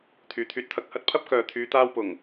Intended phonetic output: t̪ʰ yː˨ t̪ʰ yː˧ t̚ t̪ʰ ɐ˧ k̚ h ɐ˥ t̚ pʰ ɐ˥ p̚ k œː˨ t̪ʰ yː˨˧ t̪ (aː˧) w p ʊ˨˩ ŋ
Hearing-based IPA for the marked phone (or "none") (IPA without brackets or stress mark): aː˧